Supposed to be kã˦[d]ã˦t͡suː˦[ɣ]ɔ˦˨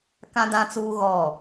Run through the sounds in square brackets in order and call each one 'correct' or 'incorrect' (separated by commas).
correct, correct